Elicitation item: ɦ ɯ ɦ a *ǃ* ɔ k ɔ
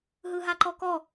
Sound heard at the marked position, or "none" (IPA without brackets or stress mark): ǃ